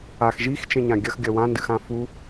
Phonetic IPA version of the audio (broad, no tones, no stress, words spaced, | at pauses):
ax ʒixt͡ʃẽɲã ɡʲɐxɡʲɐ wãndɨxã fu